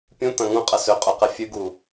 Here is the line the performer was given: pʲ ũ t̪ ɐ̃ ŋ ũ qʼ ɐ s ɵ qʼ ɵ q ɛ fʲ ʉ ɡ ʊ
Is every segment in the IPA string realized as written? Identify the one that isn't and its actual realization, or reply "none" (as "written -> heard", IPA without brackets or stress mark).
ʊ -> u